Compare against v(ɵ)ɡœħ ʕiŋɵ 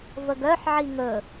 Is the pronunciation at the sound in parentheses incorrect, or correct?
incorrect